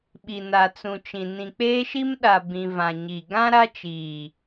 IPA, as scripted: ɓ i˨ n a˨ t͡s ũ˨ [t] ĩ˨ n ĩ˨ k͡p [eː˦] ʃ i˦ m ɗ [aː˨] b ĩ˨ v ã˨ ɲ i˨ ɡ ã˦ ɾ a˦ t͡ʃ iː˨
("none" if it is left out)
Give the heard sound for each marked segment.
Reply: t͡ʃ, eː˦, a˨

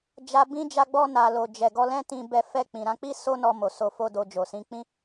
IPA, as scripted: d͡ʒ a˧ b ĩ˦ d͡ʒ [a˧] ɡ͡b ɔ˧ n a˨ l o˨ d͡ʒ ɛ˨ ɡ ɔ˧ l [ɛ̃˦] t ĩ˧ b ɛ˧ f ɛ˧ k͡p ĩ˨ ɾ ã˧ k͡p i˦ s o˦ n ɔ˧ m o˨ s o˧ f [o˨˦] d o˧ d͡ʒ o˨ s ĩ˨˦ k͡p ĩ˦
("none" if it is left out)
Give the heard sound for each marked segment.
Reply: a˧, ɛ̃˦, o˦

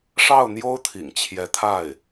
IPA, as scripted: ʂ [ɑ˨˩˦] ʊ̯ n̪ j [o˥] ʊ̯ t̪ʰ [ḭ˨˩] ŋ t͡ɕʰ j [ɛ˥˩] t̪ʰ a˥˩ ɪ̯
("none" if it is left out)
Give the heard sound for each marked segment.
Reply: ɑ˥˩, o˥, ḭ˨˩, ɛ˧˥

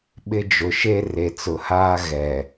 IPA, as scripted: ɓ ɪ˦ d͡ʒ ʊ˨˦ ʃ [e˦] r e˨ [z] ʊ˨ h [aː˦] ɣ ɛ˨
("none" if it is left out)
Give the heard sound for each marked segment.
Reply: e˦, t͡s, aː˦

